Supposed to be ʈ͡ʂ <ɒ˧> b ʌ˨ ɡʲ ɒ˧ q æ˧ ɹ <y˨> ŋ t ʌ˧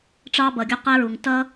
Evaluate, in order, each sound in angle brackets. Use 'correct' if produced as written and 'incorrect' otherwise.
incorrect: ɑ˧, incorrect: u˨

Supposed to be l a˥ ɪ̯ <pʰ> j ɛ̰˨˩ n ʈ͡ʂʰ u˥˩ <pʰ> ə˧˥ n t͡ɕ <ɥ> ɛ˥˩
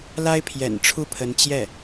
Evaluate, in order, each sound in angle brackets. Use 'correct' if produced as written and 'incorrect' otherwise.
correct, correct, incorrect: j

